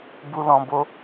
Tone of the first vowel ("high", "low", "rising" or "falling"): high